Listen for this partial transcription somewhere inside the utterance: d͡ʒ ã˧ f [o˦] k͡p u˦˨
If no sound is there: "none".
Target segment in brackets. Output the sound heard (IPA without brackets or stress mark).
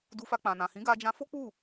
o˦